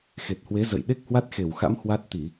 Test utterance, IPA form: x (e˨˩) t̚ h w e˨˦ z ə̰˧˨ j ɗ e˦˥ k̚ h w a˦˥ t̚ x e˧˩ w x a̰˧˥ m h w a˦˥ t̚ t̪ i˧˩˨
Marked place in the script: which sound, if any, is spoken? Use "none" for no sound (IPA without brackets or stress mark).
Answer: e˨˩